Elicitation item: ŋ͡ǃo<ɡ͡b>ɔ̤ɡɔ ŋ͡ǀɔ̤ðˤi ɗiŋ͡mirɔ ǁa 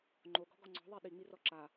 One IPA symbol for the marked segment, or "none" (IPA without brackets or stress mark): ɡ